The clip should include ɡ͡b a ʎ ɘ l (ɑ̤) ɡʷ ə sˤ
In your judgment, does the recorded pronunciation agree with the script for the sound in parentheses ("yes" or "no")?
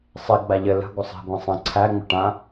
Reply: no